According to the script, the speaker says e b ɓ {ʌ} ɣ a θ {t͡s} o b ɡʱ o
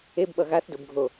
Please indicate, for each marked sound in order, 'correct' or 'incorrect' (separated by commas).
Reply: correct, incorrect